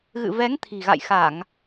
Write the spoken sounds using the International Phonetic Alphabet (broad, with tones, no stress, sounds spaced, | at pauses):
ɣ ɨ̰˧˨ v ɛ˨˦ ŋ t̪ʰ i̤˨˩ ɣ a̰˧˨ j x a˧˩˨ ŋ